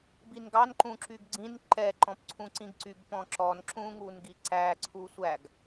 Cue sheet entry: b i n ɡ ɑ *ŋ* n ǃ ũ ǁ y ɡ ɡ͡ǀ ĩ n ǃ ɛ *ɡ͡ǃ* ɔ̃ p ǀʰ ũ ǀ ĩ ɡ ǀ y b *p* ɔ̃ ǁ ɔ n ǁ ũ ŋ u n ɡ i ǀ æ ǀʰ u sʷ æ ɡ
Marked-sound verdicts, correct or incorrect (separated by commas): incorrect, incorrect, correct